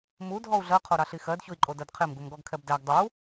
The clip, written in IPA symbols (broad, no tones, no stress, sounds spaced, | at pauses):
m u dʱ ɔ u̯ ɮ ɜ qʰ o ɾ ɑ ɬ i x ɜ d ç o i̯ ǃʼ o d ɜ d qʰ e m ɡ u m ɡ ɔ ɡ kʰ ɛ b d æ ɡ dˤ u